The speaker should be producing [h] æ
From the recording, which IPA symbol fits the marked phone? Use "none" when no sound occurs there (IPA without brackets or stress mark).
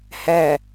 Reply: h